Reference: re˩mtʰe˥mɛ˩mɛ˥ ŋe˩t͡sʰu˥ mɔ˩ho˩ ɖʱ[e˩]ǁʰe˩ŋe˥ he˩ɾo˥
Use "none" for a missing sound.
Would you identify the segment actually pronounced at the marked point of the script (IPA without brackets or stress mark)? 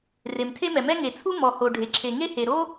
e˩